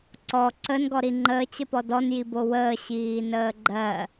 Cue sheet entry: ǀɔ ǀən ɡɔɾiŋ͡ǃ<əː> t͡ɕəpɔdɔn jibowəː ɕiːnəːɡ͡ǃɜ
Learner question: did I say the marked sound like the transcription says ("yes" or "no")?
yes